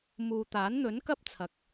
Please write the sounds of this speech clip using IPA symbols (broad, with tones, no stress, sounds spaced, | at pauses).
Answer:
m uː˨ t̪ aː˨˥ n n̪ ɵ˨˥ n k ɐ˥ p̚ t͡sʰ ɐ˨˥ k̚